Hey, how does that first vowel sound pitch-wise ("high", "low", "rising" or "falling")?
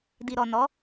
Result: low